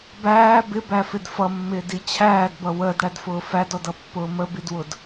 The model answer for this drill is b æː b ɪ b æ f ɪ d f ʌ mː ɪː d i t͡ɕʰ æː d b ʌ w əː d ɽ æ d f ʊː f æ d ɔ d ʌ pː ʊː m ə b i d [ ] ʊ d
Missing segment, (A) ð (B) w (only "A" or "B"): B